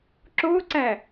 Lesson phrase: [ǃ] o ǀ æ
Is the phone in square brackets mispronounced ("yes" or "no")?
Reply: yes